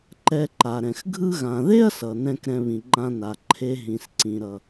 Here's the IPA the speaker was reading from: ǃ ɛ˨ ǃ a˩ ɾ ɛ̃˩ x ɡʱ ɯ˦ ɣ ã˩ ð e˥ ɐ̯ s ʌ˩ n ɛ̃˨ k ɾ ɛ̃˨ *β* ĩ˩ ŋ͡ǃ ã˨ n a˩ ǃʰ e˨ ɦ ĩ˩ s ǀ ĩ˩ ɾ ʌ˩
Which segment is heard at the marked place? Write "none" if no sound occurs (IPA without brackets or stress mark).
β